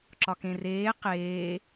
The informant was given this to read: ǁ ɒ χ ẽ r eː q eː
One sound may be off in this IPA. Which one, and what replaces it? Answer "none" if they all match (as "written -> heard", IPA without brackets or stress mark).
χ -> k